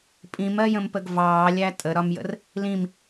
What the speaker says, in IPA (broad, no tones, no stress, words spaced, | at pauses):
pʼĩmɜjə̃mpəɡ vɑːlʲæ tʼəɾɒmjə̰r | lĩm